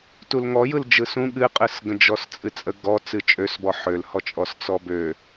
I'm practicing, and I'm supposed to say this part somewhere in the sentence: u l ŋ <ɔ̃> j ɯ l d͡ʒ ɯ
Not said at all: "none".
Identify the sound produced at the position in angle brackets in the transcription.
ɔ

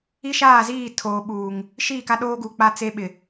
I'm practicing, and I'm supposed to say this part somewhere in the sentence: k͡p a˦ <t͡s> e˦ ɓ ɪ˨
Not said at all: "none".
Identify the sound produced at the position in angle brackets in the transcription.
t͡s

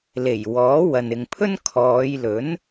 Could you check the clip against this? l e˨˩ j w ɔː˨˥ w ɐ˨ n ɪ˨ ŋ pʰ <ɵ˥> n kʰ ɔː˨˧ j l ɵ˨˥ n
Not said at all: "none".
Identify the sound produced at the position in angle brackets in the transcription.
ɵ˥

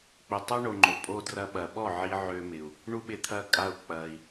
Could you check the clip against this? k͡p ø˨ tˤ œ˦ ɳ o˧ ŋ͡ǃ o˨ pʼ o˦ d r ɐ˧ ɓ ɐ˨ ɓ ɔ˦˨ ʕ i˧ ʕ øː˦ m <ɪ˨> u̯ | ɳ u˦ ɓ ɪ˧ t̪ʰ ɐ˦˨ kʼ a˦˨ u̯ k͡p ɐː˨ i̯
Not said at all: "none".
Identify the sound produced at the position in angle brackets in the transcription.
ɪ˨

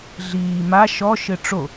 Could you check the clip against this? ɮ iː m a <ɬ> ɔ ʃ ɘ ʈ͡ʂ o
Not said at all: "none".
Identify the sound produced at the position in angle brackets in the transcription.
ʃ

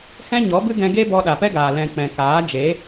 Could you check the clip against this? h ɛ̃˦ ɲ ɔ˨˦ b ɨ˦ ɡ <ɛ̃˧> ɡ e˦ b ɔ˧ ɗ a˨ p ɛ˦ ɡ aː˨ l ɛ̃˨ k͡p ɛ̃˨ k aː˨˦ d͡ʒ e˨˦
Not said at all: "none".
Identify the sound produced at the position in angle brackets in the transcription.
ɛ̃˧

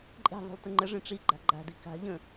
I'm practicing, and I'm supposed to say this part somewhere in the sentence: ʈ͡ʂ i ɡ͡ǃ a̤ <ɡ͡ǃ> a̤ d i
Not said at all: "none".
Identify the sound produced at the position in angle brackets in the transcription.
ɡ͡ǃ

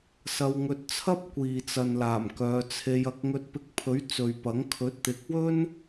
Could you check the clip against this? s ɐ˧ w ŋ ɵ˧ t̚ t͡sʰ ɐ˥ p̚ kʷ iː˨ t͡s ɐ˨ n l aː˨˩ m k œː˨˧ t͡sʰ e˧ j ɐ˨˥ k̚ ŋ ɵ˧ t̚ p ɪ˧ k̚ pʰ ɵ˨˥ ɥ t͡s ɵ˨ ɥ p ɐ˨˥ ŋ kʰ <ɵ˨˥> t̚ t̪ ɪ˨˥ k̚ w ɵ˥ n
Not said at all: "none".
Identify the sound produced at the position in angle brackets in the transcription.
ɵ˨˥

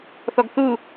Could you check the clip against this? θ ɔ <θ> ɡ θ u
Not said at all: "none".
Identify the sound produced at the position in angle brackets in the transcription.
none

